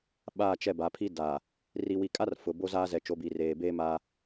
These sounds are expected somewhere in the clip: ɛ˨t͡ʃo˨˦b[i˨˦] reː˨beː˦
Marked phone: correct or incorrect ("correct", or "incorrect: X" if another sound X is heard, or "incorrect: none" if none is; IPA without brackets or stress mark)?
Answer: incorrect: i˨